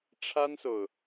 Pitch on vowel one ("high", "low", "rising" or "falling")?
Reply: high